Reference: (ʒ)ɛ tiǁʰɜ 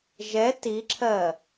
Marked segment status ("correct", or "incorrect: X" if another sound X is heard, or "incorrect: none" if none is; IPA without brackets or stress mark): correct